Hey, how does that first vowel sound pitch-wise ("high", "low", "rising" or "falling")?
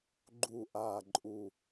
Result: low